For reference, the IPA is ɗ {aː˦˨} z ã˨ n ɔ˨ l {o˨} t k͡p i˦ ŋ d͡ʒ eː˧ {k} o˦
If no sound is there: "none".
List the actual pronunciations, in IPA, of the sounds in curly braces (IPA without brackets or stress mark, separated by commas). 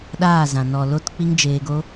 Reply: aː˦˨, o˧, ɡ